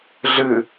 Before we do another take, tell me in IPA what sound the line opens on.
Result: ɮ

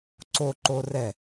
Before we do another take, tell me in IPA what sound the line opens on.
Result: ǀ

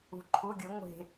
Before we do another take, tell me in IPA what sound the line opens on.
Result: ṳ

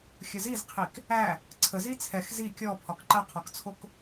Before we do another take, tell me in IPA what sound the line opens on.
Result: xʲ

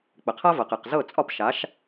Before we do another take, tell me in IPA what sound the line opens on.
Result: k͡p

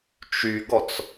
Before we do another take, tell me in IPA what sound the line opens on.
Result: t͡ʃ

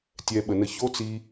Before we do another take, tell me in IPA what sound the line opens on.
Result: tʲ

